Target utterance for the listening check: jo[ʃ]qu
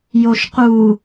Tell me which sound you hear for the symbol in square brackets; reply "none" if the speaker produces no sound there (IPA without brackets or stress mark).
ʃ